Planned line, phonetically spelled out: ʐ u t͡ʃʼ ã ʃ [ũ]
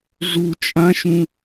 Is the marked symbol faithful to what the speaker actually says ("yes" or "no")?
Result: yes